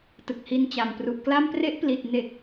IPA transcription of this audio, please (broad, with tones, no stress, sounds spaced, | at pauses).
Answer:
t ɯ˨˩ k̚ h i˧ n t͡ɕ a˨˩ m p r u˨˩ ʔ k l a˥˩ m p r e˦˥ ʔ p l i˨˩ t̚ n e˨˩ k̚